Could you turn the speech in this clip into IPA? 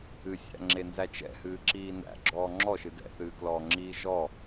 ɨ sʲ æ̰ ŋ͡ǁ e n z æ t͡ʃ ɛ̰ h ɨː ǁ iː n æ̰ ɡ͡ǁ ɔː ŋ͡ǁ ɔ ʃ ɨ d ɛ̰ θ ɨː k l ɔː ŋ͡ǁ iː ʒ ɔ

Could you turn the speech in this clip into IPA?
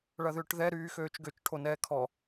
ɭ ɐ ð ʏː ʈ ð ɛ ɾ yː x øː t͡ʃ ɡ ø t͡ʃ ʈʰ o n ɛː kʰ ɔ

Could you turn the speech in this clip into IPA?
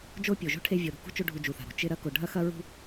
d͡ʒ o˦ pʲ o˩ ʒ o̤˥ ʈʰ e˦ vʲ o˨ ɾ ṳ˩ k ṳ˥ t͡ʃ o˦ ɖʱ u˨ d͡ʒ u˩ θ a̤˩ ɾ o̤˩ t͡ʃ ɪ˦ ɾ ɐ˦ k o˨ ɖʱ ɐ˥ x ɐ˥ ɹ ṳ˦

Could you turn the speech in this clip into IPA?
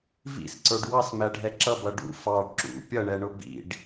v ḭ s ǀ ə˞ ɖ w ɑ s m æ ɖʱ ɛ ǁ ʌ b ʌ ɖ ṵ f ɑ ɖ ǁ ṵ pʲ ʌ ɳ ɛ ɳ ʊ b ḭ ɖ

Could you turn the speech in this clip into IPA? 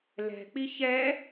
l ɛ̤ k͡p i ç ɛ

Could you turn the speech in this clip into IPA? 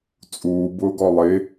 t͡sʼ uː b ʊː ɡ ɔ lˠ ɪ

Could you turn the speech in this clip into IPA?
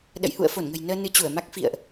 ɗ ə̰˧˨ j h ṵ˧˨ ə̯ f o˧˩ n ŋ ə̤˨˩ j n əː˧ n ɨ˧ t͡ɕ u˧˩ ə̯ m a˦˥ k̚ f ḭ˧˨ ə̯ ʔ

